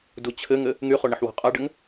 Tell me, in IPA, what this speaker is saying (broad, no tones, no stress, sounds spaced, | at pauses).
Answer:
d u t͡ɕʰ ɘ ŋ ɘ | ŋ y χ o ɳ ə ħ w ɔ̤ qʼ a ɖ ɘ ŋ